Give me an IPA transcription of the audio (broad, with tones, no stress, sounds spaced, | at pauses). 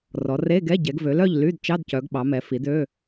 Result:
r ɔ˩˧ r e˧˥˧ ɡ ɛ˧˥˧ ɟ ɛ˩˧ ɡ v ø˩˧ l œ˥˨ ʎ l y˧˥˧ d t͡ʃ ɑ˧˥˧ d c œ˩˧ ɡ ɓ ɑ˩˧ m ɛ˩˧ f i˩˧ d ø˧˥˧